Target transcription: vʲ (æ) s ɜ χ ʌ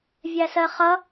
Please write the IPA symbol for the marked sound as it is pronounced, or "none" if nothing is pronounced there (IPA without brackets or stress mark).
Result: æ